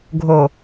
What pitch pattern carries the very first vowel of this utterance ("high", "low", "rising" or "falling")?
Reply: low